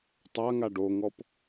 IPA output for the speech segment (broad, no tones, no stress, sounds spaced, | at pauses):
tˤ a ŋ a ɖ o ŋ ɔ p